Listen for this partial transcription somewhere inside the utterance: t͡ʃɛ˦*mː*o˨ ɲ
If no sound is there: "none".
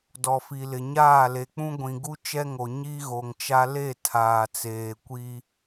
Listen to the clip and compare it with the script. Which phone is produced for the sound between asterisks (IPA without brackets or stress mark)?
ŋ